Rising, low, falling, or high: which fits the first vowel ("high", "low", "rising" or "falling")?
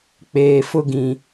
low